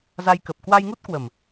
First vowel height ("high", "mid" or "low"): low